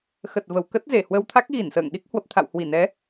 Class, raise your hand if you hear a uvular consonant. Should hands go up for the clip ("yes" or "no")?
no